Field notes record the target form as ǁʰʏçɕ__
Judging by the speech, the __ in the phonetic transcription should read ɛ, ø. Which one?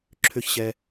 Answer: ɛ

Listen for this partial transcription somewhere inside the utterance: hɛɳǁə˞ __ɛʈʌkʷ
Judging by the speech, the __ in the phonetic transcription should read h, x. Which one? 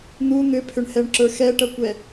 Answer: x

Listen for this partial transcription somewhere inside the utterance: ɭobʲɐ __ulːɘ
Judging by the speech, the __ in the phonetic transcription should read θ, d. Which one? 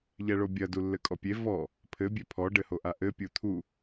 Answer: d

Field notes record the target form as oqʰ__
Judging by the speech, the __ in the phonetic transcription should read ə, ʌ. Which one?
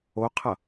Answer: ʌ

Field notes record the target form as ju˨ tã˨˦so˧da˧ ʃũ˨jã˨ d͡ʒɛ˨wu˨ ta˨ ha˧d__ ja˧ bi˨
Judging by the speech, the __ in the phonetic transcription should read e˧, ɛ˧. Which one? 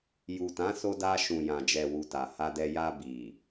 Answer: ɛ˧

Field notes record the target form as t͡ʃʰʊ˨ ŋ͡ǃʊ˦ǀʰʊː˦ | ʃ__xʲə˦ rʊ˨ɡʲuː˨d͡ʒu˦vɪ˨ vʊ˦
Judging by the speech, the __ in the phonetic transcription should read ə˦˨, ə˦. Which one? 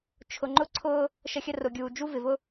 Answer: ə˦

